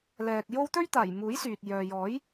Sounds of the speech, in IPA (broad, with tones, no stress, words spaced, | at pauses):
lɛː˨k̚jo˥w t̪ɵ˥ɥt̪aː˨˩jmuː˨˥j syː˨t̚ jœː˨ jɔː˨˥j